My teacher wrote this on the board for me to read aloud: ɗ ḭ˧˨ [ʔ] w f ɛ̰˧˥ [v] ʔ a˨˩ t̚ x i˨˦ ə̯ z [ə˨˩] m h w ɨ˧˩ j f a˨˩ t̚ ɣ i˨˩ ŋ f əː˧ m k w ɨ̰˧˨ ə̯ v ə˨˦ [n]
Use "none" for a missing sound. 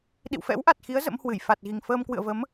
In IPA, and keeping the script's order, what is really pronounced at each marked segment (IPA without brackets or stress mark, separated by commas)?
none, w, ə̰˧˥, m